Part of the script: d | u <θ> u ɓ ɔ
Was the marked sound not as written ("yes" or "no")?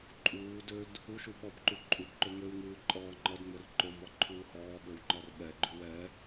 yes